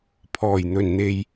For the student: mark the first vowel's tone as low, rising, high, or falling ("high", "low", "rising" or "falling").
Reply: low